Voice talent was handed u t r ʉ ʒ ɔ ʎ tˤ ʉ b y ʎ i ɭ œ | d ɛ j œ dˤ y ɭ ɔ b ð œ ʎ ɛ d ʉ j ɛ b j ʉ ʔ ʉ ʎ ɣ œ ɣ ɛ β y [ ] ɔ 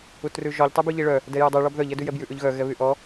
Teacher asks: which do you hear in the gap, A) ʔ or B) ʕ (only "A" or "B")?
A